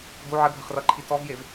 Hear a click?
yes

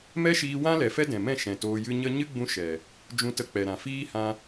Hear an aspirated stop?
no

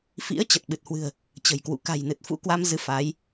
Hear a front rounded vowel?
no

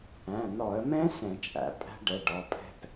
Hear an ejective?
yes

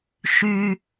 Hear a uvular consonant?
no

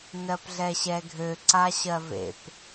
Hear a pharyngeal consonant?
no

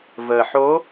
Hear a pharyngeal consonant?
yes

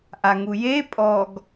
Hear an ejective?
yes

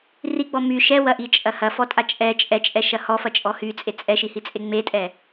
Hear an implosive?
no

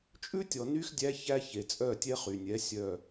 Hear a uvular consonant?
yes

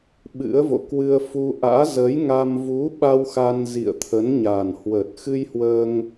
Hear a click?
no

